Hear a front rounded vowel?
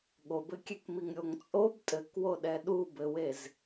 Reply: no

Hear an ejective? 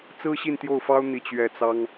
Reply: no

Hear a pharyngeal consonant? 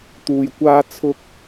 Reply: no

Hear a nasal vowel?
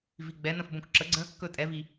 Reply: yes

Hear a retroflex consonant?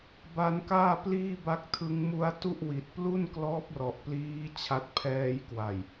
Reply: no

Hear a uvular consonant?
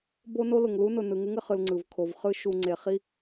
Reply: yes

